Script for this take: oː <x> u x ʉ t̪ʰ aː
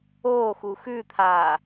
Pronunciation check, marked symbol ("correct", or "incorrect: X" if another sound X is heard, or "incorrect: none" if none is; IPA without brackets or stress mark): correct